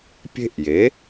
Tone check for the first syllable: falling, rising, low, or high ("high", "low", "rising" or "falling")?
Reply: high